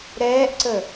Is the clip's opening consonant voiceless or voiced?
voiced